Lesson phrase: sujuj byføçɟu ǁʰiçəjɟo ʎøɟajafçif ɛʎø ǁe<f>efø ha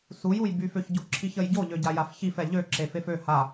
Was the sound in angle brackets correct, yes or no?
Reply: yes